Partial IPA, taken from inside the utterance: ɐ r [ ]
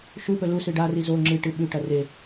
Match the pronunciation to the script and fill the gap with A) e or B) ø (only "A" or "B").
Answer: A